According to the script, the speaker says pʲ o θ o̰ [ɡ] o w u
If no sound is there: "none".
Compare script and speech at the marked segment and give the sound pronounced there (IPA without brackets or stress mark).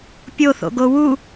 ɡ